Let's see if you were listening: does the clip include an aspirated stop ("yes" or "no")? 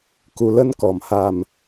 no